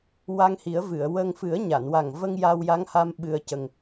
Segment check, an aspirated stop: absent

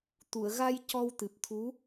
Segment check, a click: absent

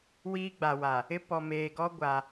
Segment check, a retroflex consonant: absent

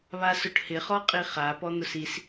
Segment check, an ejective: present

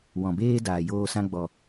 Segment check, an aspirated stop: absent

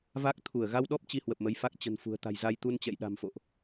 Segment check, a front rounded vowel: absent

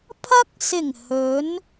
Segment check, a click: absent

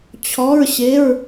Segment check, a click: absent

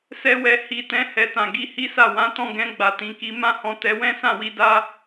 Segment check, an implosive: absent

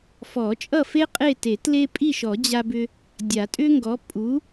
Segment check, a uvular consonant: present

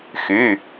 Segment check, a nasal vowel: absent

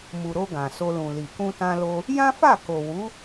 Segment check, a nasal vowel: present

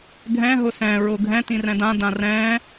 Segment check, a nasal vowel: present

